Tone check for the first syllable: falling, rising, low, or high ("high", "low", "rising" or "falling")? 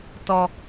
low